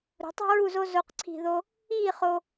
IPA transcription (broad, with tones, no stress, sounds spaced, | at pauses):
ɾ ṳ˩˧ tˤ i̤˥ ɹ u˥˧ z o˥ z o˥˧ q ǀʰ i̤˥˧ ð o˥ | iː˥˧ χ o˧